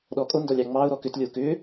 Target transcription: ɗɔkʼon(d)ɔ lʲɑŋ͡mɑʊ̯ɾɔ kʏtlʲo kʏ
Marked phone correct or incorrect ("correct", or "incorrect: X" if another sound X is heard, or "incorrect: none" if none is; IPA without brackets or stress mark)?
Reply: correct